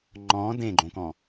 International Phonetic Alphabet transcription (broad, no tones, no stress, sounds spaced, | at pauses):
ŋ͡ǃ ɔ̃ d ẽ ɡ͡ǃ õ k ɔ̃